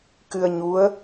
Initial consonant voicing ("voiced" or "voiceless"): voiceless